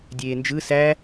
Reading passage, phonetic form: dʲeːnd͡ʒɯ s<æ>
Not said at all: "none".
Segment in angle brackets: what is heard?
æ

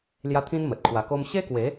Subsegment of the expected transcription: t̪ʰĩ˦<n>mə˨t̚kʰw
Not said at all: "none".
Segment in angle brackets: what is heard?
n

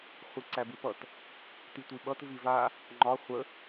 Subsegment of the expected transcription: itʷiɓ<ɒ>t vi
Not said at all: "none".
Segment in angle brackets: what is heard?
ʌ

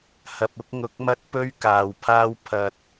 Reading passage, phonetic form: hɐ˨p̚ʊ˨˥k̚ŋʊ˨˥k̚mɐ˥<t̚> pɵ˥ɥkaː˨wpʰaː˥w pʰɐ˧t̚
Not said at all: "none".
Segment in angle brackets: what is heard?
t̚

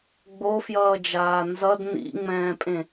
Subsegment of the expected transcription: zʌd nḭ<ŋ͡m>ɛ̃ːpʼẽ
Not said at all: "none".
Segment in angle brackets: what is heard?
ŋ͡m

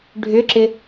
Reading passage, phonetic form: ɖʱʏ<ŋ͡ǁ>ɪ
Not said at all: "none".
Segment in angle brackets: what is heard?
ǁ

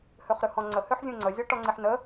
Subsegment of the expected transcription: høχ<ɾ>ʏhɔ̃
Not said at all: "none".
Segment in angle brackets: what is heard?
ɾ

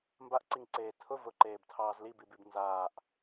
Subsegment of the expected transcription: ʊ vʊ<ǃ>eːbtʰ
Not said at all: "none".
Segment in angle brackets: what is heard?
ǃ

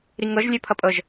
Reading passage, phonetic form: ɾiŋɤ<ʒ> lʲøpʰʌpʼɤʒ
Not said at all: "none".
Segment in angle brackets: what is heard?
ʒ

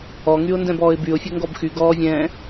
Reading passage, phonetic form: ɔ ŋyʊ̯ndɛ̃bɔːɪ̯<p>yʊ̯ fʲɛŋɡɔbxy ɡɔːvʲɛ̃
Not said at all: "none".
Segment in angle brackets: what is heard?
b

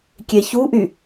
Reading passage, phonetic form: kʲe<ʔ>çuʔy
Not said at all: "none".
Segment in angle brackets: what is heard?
none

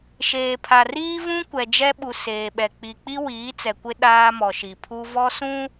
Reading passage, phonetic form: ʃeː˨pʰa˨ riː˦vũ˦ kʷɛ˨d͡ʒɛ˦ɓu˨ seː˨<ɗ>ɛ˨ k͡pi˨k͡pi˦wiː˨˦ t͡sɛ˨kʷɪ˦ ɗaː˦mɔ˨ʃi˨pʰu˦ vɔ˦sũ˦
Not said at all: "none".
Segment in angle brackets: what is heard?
ɓ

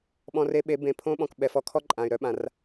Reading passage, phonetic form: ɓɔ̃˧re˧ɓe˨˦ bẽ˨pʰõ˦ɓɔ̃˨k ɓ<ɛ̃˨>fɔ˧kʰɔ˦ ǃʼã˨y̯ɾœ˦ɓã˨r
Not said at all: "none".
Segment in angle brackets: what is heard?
ɛ˨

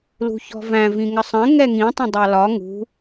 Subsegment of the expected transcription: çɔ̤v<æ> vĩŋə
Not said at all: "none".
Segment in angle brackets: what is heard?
æ̃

